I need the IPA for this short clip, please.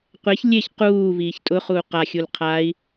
qʷ e ç lʲ e ç q uː v iː ç tʼ ʊ χ uː q a xʲ u l qʰ aː i̯

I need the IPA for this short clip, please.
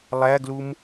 lˠ æ ɡ l u m

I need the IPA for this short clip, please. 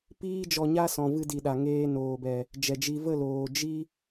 p iː˦ d͡ʒ ɔ˧ ɲ a˦ s ɔ̃˨ v ɨ˧ d i˨ ɗ a˨ ŋ eː˧ n oː˨ b ɛ˨ | d͡ʒ ɛ˨ d͡ʒ i˧ v ə˦˨ l oː˨ d͡ʒ i˧

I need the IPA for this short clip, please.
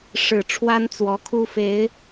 ʂ ɻ̩˨˩ ʈ͡ʂʰ w a˦ n t͡s w ɔ˨˦ kʰ u˦ f e˨˦ ɪ̯

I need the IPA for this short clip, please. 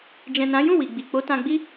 d͡ʒ ɛ̃˨ n ã˨˦ j ũ˦˨ w i˨ ɡ͡b i˨ k͡p o˨˦ t ã˧ ɡ͡b i˦

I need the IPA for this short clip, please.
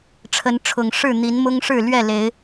ʈ͡ʂʰ ə˨˦ n ʈ͡ʂʰ ʊ˨˩ ŋ ʂ ɻ̩˥˨ n̪ i˨˦ n m ʊ˦ ŋ ʂ ɻ̩˥˨ l ɥ ɛ˥˨ l e˨˦ ɪ̯

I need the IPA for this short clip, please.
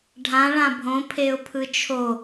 ɖʱ ã ɭ ã bʱ õ pʰ e ʊ̯ pʰ ɯ t͡ʃʰ o

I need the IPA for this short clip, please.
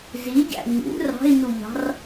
z i ɟ æ̰ ɲ ṵ r ɑ̤ i̯ n u ʎ ɑ̤ r

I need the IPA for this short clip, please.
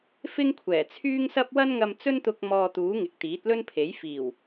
f ɪ˥ ŋ kʷʰ ɛː˨˩ t͡sʰ yː˥ ŋ s ɐ˥ p̚ w ɐ˥ n ŋ ɐ˧ m t͡s ɵ˥ n t̪ ʊ˧ k̚ m ɔː˧ t̪ uː˨˥ ŋ ɪ˨ k̚ t̪ iː˨˥ t̚ l ɵ˥ n pʰ e˨˥ j f iː˨˩ w

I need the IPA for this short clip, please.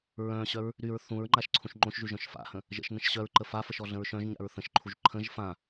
ɹ œ̃ ɕ œ ɹ | ɾ y ɹ θ ũ ɹ ŋ͡ǃ a ʃ ǀʰ ũ ʃ ŋ͡ǃ õ ʃ ʒ y ʒ œ̃ ʃ f a̰ h ə̃ | ʒ ə̰ ʃ n ə̃ ʃ ɕ œ ɹ ǃ ə f a f ə ʃ ɔ ɮ ə̃ ɹ ʃ œ̃ ʒ ɲ a̰ ɹ θ ə̃ ʃ ǃʰ u ʒ ǃʰ ə̃ ʒ f ã

